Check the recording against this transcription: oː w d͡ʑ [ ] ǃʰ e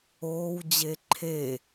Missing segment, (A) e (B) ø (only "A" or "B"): A